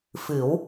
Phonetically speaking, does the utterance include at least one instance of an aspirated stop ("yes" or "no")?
no